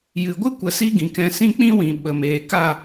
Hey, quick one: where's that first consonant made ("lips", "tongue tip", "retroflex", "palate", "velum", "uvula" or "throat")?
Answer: palate